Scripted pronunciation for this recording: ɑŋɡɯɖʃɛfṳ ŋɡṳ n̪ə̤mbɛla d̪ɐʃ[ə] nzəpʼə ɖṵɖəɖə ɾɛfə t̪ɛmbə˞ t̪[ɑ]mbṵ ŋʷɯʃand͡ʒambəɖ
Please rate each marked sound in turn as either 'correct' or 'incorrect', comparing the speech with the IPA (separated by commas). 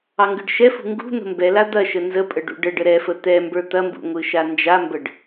correct, incorrect